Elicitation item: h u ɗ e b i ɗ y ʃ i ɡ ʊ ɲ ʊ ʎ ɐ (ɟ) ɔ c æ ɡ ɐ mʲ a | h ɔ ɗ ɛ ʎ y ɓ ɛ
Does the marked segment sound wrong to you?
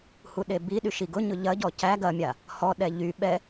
no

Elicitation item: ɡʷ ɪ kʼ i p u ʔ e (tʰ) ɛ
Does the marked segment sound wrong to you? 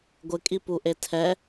no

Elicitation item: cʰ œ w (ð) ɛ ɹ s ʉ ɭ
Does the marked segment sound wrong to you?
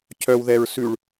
no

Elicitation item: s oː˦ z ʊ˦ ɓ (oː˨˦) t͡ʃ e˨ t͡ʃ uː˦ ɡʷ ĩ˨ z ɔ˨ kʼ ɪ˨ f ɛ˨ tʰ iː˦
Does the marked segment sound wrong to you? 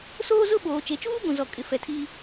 yes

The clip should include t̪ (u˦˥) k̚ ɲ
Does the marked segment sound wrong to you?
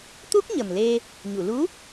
no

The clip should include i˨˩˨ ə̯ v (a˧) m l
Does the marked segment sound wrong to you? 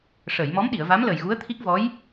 yes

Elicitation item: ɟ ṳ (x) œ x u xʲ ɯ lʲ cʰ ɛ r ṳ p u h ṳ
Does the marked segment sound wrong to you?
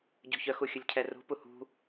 yes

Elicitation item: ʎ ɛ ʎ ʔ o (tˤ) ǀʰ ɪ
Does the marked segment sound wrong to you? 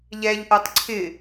no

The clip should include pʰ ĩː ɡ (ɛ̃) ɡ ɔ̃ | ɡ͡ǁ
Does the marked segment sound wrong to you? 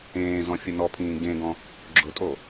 yes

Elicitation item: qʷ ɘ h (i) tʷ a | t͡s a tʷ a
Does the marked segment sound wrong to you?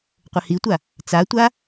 no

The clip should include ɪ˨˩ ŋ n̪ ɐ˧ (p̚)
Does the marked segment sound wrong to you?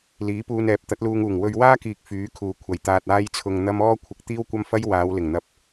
no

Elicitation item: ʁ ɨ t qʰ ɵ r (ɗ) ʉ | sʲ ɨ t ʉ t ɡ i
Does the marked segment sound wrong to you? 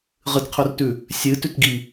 yes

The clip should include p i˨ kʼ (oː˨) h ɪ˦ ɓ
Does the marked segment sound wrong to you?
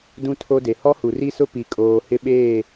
no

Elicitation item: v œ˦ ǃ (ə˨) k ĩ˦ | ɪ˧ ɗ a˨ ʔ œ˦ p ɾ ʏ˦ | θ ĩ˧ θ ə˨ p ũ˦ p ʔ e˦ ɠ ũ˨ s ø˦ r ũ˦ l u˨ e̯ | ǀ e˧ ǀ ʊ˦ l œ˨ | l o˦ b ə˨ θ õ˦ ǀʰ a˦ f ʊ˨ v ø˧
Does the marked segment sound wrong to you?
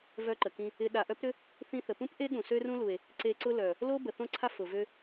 no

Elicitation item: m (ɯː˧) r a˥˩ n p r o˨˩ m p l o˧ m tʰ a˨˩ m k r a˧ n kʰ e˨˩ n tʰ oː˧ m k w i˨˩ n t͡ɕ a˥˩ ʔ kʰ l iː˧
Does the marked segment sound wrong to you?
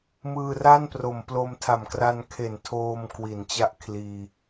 no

